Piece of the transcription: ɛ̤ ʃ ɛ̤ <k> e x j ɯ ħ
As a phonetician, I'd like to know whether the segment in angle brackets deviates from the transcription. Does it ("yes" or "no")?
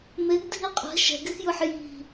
yes